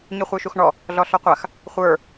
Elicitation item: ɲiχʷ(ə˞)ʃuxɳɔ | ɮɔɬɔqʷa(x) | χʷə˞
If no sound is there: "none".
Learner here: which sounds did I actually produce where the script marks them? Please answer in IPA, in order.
ə˞, x

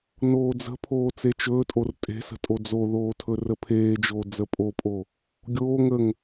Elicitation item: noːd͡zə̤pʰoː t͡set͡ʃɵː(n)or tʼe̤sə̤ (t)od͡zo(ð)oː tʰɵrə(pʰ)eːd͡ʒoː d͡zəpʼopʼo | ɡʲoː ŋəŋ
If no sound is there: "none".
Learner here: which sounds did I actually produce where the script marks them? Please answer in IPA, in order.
tʼ, tʼ, ð, pʰ

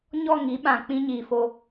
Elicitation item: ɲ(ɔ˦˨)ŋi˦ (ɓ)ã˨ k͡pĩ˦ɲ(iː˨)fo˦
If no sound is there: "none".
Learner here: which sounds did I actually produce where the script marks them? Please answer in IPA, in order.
ɔ˦˨, ɓ, iː˨

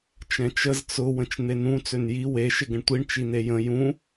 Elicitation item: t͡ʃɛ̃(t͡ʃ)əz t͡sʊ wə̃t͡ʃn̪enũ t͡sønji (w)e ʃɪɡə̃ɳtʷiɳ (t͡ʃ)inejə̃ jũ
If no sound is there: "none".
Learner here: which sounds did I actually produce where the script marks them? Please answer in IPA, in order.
t͡ʃ, w, t͡ʃ

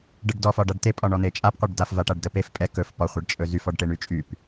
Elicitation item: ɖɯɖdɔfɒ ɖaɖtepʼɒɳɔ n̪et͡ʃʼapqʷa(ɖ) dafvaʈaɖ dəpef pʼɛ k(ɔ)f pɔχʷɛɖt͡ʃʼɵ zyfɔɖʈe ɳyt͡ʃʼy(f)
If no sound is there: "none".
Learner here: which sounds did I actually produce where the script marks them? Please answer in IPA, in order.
ɖ, ɵ, p

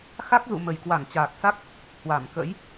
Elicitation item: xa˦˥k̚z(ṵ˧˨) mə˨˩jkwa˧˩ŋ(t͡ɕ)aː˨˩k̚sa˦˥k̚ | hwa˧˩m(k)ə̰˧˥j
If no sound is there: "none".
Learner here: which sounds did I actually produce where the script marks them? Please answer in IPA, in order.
ṵ˧˨, t͡ɕ, k

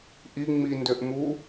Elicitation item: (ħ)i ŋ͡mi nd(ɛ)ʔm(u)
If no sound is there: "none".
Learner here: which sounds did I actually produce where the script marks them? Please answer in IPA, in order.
ʔ, ø, u

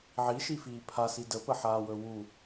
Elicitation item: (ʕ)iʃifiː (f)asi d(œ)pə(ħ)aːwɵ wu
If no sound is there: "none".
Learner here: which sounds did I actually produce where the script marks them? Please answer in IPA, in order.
ʕ, pʰ, ə, ħ

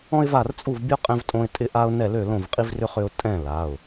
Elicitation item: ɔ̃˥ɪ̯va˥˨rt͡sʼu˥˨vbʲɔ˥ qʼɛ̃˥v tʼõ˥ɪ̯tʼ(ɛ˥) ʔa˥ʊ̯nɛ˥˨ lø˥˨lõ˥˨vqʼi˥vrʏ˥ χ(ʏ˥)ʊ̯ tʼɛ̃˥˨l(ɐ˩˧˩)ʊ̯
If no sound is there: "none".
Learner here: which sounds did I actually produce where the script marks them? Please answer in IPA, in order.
ɪ˥, ʏ˥, a˩˧˩

